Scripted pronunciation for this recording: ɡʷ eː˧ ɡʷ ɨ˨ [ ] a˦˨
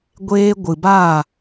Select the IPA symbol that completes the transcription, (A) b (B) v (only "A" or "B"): A